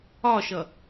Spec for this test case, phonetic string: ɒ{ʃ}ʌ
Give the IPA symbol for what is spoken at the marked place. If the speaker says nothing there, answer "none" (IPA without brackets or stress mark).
ʃ